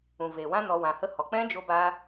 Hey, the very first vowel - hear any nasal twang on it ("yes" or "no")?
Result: yes